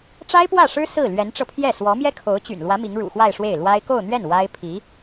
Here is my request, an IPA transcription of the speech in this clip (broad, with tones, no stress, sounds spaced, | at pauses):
ʈ͡ʂ a˥ ɪ̯ p w ä˥˩ ʂ ɻ̩˥ s ɹ̩˥˩ l ɥ ɛ˧˥ n ʈ͡ʂ ɤ˧ pʰ j ɛ˥˩ s w ɔ˧˥ m j ɛ˥ kʰ o˧˥ ʊ̯ t͡ɕ y̰˨˩ n l w ä˧˥ m i˧˥ ŋ ɻ ṵ˨˩ x w a˥˧ ɪ̯ ʂ w e˥˩ ɪ̯ l w a˥ ɪ̯ k o˥˧ ʊ̯ n̪ ɥ ɛ˥˩ n w a˥ ɪ̯ pʰ i˧˥